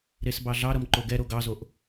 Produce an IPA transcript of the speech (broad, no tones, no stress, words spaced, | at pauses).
ɾesbɑɮɑɾʌm ǃoɡɛɾo ɡɑzoʔ